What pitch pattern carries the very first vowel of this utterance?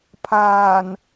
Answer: low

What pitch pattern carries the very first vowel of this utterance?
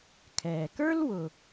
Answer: low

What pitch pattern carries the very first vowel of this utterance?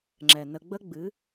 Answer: low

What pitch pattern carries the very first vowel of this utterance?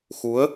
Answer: rising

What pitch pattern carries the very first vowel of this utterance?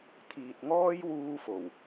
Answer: low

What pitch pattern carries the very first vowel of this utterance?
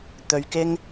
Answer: low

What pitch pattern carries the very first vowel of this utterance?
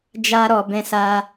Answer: high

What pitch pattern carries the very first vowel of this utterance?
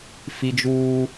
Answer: high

